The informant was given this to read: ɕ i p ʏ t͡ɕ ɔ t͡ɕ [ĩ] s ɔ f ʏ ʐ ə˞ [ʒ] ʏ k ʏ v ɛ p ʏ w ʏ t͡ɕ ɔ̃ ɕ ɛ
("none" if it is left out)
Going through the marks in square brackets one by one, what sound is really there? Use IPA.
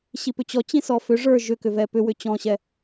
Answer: ĩ, ʒ

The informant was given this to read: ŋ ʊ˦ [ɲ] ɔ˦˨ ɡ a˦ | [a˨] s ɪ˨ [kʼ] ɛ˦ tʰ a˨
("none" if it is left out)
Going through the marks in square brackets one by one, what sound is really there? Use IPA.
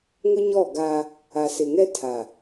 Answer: ɲ, a˨, ŋ

